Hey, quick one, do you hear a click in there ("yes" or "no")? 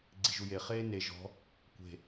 yes